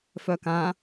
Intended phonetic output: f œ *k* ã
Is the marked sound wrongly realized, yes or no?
no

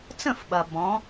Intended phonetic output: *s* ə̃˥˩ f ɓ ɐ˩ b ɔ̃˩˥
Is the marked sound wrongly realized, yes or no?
yes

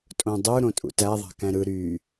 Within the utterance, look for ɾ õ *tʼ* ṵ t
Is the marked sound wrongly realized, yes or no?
no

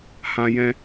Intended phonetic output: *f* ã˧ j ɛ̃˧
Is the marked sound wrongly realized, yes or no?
yes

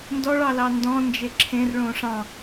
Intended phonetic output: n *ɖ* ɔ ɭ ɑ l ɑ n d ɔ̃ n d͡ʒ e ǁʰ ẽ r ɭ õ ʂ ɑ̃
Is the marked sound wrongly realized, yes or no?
yes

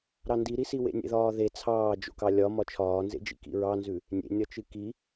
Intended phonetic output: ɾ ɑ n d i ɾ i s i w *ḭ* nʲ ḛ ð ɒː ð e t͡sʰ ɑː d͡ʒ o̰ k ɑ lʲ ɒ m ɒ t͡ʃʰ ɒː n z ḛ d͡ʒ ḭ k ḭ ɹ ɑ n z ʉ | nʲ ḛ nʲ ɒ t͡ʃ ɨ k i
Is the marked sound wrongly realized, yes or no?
yes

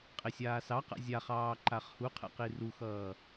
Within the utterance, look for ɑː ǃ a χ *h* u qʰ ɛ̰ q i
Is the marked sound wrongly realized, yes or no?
no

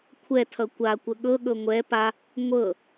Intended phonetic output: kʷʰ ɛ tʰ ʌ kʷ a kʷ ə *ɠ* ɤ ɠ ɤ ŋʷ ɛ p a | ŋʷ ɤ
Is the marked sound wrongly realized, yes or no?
no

